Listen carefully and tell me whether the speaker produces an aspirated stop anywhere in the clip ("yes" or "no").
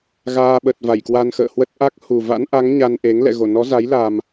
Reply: no